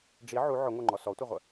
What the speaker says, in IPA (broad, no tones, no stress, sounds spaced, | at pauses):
ɖ͡ʐ i ʕ u ʕ ʊ ŋʷ ə˞ ŋ͡ǃ ɔ s ɔ tʷ ʌ ʁʷ ə